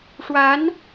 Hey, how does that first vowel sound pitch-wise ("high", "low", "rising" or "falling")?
rising